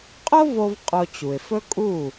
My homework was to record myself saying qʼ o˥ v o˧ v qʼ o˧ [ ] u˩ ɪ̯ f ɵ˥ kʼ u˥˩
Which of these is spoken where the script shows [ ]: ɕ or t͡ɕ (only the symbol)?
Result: t͡ɕ